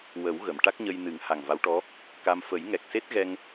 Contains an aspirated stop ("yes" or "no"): no